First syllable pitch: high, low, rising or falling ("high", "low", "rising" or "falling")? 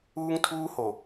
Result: high